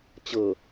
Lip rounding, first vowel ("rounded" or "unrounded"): unrounded